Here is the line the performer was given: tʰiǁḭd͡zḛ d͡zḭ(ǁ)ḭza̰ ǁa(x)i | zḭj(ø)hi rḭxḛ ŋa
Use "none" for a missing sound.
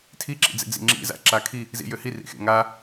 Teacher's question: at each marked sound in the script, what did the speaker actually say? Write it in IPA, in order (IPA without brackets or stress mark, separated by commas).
ŋ͡ǁ, kʰ, ø